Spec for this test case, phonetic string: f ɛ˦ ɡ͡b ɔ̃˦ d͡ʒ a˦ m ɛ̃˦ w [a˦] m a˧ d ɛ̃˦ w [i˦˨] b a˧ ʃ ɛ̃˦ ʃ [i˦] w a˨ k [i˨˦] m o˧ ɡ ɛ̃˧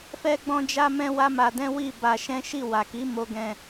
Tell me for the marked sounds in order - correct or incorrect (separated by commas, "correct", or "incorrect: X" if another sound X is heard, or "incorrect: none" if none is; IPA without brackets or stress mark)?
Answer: correct, correct, incorrect: i˦˨, correct